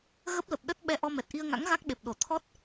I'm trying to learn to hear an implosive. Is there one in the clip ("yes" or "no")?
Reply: yes